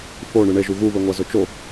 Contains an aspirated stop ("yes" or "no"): no